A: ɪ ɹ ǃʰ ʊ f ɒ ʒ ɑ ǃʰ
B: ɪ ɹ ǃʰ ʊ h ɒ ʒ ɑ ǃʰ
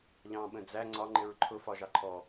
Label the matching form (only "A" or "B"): A